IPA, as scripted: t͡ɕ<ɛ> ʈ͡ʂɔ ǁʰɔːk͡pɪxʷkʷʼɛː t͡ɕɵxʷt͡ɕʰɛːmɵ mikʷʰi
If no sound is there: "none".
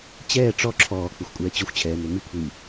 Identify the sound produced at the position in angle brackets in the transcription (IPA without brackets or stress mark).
ɛː